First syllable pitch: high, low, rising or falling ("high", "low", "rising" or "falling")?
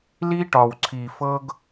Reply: high